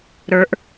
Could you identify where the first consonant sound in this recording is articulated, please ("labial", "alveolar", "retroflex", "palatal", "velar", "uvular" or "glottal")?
alveolar